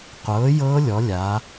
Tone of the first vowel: rising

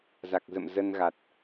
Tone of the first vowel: low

